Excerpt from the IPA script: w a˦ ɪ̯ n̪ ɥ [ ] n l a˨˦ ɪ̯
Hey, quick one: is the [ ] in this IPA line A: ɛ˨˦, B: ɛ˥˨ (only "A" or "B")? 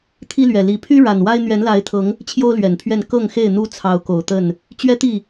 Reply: A